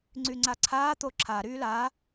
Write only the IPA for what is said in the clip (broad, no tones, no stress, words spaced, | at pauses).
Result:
ŋ͡ǀyŋ͡ǀaǀʰaː t̪oǁʰa ɾyːla